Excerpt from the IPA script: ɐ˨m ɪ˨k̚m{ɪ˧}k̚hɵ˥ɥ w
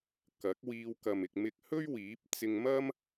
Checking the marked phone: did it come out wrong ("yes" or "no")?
no